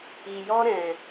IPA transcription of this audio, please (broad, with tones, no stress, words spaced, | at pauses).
i˨jɔ˦ɾɛ̃˨